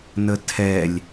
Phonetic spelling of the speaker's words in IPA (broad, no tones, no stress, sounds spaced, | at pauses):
n ə tʰ ɛ lʲ